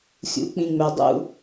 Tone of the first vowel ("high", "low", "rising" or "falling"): rising